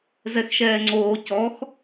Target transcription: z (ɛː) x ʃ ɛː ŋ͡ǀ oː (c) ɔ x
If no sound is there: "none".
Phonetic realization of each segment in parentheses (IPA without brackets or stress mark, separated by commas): ɛ, c